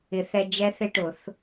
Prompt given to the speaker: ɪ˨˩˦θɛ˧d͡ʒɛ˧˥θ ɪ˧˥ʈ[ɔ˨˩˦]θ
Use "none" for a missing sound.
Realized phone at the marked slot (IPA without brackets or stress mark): ʊ˨˩˦